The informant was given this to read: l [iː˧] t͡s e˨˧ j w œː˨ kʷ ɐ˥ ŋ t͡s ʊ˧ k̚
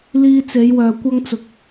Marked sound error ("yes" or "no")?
no